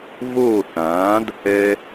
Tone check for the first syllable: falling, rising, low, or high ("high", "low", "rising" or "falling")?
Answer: falling